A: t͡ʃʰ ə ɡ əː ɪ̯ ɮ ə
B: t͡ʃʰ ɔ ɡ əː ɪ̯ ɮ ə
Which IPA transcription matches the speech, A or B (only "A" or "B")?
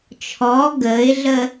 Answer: B